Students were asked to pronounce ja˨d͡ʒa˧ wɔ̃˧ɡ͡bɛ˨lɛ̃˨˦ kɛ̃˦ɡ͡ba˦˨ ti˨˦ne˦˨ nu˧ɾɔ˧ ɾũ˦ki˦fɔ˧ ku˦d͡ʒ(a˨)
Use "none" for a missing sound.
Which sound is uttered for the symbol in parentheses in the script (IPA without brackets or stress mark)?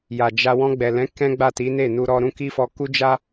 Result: a˦